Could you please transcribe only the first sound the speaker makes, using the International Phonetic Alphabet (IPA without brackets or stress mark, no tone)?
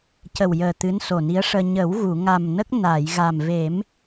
c